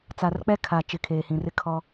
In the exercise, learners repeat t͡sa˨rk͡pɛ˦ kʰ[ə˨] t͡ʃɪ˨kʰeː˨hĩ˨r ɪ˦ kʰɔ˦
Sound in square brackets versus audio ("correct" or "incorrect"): incorrect